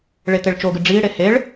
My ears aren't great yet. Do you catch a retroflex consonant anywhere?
yes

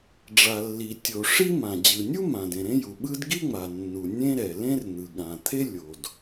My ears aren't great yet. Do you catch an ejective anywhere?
no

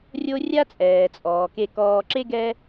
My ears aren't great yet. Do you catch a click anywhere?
yes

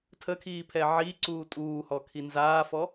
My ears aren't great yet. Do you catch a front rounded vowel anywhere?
no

